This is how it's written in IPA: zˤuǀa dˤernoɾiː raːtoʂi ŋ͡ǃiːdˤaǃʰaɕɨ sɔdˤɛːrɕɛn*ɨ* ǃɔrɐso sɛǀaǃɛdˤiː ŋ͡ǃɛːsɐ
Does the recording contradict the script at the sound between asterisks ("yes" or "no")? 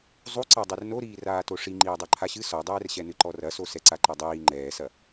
no